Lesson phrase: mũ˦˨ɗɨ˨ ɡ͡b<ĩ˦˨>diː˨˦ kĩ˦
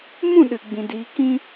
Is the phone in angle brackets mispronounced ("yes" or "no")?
yes